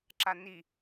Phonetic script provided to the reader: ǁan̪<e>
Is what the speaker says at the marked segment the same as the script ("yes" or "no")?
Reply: no